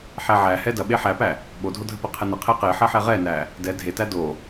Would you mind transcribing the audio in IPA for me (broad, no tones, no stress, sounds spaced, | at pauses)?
ħ æ ʕ æ h ɛ d ɐ ɓ e ħ æ p æ | ɓ o dʱ o dʱ ə p ə qʰ ɛ n ə qʰ e q e ħ ɐ ħ ɛ ʁ ɛ n æ | d ɛ dʱ e t æ d o